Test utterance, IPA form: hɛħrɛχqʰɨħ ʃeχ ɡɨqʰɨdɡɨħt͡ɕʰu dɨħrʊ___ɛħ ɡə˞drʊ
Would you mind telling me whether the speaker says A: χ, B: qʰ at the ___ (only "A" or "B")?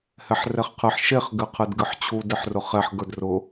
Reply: A